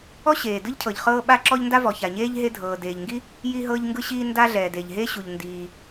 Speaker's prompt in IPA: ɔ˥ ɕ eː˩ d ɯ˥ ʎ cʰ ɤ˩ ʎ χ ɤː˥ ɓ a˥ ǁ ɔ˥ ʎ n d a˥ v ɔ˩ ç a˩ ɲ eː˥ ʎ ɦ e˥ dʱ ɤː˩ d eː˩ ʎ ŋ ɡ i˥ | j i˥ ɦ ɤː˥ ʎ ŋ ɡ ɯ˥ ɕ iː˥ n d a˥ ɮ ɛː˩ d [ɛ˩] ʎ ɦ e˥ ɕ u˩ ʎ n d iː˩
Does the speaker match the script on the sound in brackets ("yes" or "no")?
no